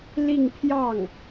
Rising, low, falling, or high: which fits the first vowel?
falling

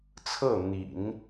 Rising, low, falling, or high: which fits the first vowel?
falling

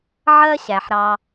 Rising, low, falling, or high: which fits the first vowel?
high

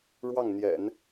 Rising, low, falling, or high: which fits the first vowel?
falling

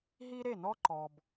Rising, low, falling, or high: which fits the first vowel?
high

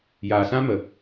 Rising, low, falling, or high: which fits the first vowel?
low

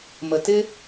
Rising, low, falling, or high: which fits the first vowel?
low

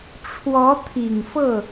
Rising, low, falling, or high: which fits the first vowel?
rising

